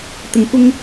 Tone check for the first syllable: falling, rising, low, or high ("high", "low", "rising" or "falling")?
low